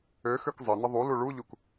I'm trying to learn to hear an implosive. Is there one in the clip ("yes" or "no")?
no